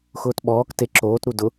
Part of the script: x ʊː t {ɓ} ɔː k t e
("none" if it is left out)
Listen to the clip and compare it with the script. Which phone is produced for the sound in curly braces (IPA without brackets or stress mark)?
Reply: ɓ